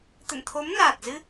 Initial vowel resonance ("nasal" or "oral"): oral